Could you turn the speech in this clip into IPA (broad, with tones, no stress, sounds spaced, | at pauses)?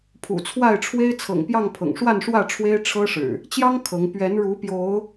pʰ ṵ˨˩ t͡sʰ w a˥˨ ɪ̯ ʈ͡ʂʰ w e˦ ɪ̯ t͡sʰ ɤ̰˨˩ ŋ p j ɑ˥˨ ŋ pʰ ɤ̰˨˩ ŋ ʂ w a˥˨ n ʂ w ä˥˨ ʈ͡ʂʰ w e˦ ɪ̯ ʈ͡ʂʰ ɤ˦ ʂ ɻ̩˨˩ | t͡ɕ j ɑ˦ ŋ kʰ ɤ˨˦ ŋ p ɥ ɛ˨˦ n ɻ u˨˦ p j o˨˦ ʊ̯